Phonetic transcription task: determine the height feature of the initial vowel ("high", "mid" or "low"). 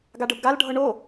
low